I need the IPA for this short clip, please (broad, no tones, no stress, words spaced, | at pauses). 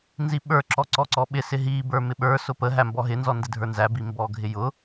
nziɓə˞ ǁɔǀɔǀɔɓɪ sɪɦi bə˞mɪɓə˞ sʊpə ɦæmbɔɦɪ nzɔndɪdʱə˞nzæ bimbɔɡʱɪjʊ